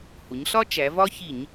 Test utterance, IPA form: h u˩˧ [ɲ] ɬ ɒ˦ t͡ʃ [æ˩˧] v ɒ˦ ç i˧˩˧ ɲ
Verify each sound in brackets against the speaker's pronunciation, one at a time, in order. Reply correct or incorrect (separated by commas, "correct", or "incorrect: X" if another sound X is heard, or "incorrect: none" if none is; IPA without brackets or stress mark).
correct, correct